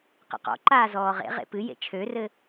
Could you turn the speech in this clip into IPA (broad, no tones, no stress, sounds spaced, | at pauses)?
q ə̰ q ɔ̰ ǃ aː z ɔː ʁ ḛ ʁ ḛ p ɨ j ḛ t͡ʃʰ ø r ɘ